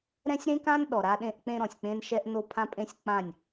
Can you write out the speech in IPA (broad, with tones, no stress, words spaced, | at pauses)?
ɾɛ̃˦sʲɾẽ˦kã˦n ɗɔ˨ɾa˦ɗẽ˦ʔk͡pẽ˦ ɾɔ̃˨sʲk͡pẽ˦nʃɛ˦ʔ no˦pʰã˦pʼẽ˦sʲk͡pã˦˨nʲ